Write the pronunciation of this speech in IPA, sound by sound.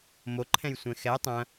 m o ǃʰ ɛ̃ j sʷ ɛ̃ x ɛ tˤ ɐ̃

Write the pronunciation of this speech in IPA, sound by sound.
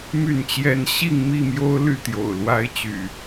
m y˥˨ n t͡ɕ j ɛ˦ n ɕ i˥˨ ŋ m i˥˨ m j o˦ ʊ̯ l y˥˨ t̪ j o̰˨˩ ʊ̯ l w a˦ ɪ̯ t͡ɕ y̰˨˩

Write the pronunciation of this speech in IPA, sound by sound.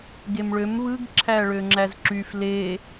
ɡ e m ɭ ø m β ɯ ɡ ǁʰ æ ɭ ø ŋ͡ǁ æ z ǁ y f l e

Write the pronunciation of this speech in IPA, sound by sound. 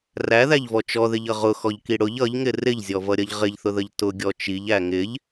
r æ ð æ ʎ v ɔ t͡ʃ ɔ ð ɪ ʎ ʌ ʁ ʊ x ɔ ʎ k i ɽ ʊ ʎ ʌ ʎ ŋ ɪ r ɪ ʎ zʲ ɔ v ʌ ɾʲ ʌ ʎ ʁ ɪ ʎ θ ʊ ð ə ʎ t ʊ ɡʲ ɔ t͡ʃ i ʎ æ ŋ ɪ ʎ

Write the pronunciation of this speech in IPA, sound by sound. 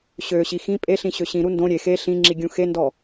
ɕ ø ɕ i x ĩ pʼ e ɬ ĩ ɕ ø ɕ ĩ ɾ u n d õ ɾʲ e x e ɬ ĩ ŋ͡ǁ i ɡʲ ũ x e n d ɔ

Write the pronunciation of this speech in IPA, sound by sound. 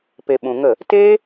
p e˨ ɓ ũ˨ ŋ ə˦˨ | t eː˦

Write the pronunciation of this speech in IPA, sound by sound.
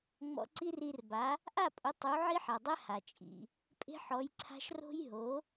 ŋ͡m ɔ̰˧ ǀ i˥ r i˧ r b a˩˥ | ʔ a˥˩ pʼ ʊ˩˥ tˤ u˩˥ ʕ i˥ ħ a˩ dˤ ɛ˥ h a˩ t͡ʃʼ ḭ˩ | pʼ e̤˥ ħ ɔ˩˥ j ǀʰ a̤˥ ʃ r o̤˥ j ɦ o˩˥

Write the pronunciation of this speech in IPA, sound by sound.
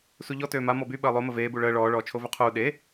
s u ʎ ɔ t øː m a m ɔ b y ɓ əː lˠ o m ə v eː b u ɭ əː ɭ ɔː ɭ ɔː t͡ʃʰ o v ø qʰ uː ɗ e

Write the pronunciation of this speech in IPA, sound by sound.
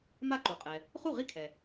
m a˥˩ ǃ u˩ qʼ ɛ˩ | χ u˥˩ ʁ i˥˩ kʰ ɛ˩

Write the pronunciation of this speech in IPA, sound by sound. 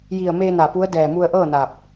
j i˧˩ ə̯ m eː˧ n a˧˩ p u˧˥ ə̯ d ɛː˧˩ m u˧ ə̯ ʔ ɤː˥˨ n a˧˩ p̚

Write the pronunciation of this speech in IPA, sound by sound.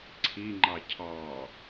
ǀʰ i ŋ͡ǃ ɑ cʰ ɑ

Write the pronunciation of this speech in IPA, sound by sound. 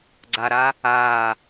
ɡ͡ǀ a ɾ a | a

